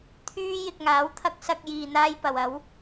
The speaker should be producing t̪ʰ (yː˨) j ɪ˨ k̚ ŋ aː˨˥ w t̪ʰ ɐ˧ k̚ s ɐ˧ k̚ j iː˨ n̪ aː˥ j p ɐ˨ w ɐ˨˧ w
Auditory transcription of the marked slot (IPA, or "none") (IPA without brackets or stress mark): yː˥